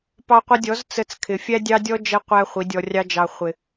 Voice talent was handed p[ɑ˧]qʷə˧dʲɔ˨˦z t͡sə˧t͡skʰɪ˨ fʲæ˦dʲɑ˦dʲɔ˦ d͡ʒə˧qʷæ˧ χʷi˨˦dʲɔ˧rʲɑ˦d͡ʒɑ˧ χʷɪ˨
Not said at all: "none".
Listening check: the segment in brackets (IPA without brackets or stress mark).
ɑ˧